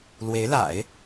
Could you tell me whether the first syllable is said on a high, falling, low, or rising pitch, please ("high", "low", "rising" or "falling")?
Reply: rising